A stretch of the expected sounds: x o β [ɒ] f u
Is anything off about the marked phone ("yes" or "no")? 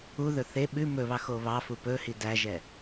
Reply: yes